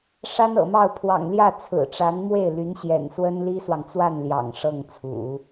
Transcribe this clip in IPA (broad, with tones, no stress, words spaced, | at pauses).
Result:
ʂa˥nɤ̰˨˩mɑ˥˩ʊ̯ pʰwɑ̰˨˩ŋljä˥˩ t͡sʰɹ̩˨˩ʈ͡ʂa˧˥nmwe˥˩ɪ̯ly˧˥n ɕjɛ̰˨˩nswə˥n li˥swɑ˨ŋ t͡swa˥˩n ljɑ̰˨˩ŋ ʂɤ˥˩ŋt͡sʰṵ˨˩˦